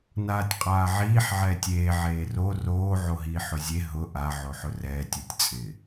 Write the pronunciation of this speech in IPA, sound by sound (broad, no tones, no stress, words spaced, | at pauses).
naːtʲqʼaːʕiːħ ʕɛːtʲeː ʕeːro roː ʕoɦiːħʊzʲe ɦʊ ʔa ʕoħʊrɛːtʲ utʲt͡sʼɪ